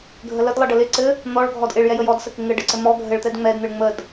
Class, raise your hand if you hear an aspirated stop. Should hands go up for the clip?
no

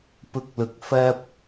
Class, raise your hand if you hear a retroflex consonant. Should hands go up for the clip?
no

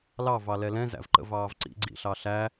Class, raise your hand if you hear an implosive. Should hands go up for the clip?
no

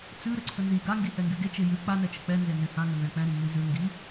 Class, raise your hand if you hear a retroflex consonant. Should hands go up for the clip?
no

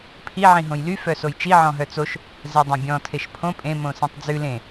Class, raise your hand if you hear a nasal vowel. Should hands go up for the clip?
yes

